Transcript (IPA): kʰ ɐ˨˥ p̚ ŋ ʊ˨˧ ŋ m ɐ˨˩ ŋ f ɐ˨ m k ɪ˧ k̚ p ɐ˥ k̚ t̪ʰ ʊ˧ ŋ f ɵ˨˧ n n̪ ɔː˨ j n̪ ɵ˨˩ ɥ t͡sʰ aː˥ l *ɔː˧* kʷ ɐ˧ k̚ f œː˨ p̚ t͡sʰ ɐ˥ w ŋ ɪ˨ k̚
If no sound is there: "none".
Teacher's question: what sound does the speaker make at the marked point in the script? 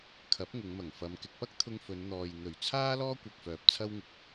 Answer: ɔː˥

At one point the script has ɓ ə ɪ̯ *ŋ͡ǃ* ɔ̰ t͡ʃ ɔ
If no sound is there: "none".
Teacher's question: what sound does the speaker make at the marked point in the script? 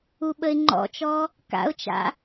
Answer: ŋ͡ǃ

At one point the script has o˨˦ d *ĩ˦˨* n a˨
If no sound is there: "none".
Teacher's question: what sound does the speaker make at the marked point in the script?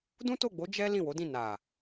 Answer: ĩ˦˨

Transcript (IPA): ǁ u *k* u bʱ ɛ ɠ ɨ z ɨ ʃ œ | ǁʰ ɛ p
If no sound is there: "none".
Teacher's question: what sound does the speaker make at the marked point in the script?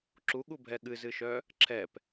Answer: ɠ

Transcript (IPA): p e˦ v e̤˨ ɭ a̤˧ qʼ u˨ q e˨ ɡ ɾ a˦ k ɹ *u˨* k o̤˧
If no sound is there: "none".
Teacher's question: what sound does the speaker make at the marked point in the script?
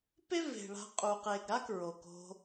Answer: o˨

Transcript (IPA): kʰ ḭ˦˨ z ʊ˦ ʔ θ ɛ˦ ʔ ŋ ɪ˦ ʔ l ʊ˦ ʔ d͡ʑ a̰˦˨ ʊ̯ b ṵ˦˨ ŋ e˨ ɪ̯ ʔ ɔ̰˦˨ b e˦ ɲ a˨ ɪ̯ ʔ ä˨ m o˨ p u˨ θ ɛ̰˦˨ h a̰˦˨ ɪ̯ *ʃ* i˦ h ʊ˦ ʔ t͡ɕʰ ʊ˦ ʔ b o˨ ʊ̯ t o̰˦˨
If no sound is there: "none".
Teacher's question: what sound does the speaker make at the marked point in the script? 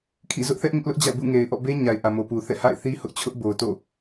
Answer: θ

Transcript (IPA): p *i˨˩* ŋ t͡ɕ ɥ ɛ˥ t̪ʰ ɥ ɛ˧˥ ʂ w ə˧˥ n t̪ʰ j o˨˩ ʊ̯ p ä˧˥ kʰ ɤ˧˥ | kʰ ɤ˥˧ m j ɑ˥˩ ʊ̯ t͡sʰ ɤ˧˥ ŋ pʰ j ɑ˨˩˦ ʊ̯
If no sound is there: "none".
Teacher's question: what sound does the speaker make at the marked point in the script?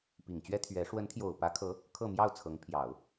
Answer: i˨˩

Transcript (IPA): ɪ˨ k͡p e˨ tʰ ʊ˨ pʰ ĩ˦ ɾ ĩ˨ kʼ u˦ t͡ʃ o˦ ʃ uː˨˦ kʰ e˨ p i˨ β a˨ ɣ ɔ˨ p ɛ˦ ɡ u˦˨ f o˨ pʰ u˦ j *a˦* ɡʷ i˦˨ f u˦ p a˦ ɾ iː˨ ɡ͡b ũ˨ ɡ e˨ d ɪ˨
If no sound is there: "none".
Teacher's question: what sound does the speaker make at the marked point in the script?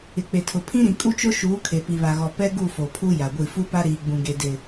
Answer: a˨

